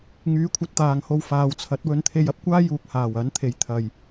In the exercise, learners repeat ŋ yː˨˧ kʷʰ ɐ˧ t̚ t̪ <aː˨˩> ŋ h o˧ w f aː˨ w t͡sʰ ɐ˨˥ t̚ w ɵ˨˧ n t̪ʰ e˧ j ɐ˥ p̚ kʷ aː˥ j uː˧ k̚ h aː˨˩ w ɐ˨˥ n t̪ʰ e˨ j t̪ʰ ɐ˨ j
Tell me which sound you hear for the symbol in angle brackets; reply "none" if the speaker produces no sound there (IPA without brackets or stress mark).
aː˨